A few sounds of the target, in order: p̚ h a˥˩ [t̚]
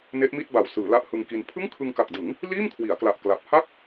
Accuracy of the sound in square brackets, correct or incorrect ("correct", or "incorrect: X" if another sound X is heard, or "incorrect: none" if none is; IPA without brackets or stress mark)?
incorrect: k̚